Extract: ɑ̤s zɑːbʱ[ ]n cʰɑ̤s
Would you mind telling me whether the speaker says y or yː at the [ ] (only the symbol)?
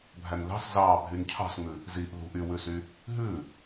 y